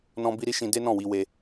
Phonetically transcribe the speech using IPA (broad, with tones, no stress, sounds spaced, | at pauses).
n ɔ̃˦ b i˦ ɾ i˦ ʃ ĩ˧ d e˦ n ɔ̃˦˨ w i˧ w e˧